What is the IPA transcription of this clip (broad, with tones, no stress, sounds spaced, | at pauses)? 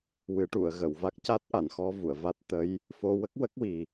w ɨ˨˩˦ ʈ u˨˩˨ ə̯ ɣ ə˨˩˨ w v a˦˥ k̚ c a˦˥ t̚ ʔ a˨˩˨ n x ɔ˧ v u˨˩˨ ə̯ v a˦˥ t̚ t̪ ə˧˥ j | f o˧ w ə˦˥ k̚ w ə˦˥ k̚ w i˨˩